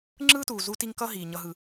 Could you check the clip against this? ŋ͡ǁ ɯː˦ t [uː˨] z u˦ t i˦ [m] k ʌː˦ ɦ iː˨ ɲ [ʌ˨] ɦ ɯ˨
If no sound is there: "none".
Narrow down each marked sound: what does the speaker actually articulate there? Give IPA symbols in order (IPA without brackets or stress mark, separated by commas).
uː˨, ŋ, ʌ˨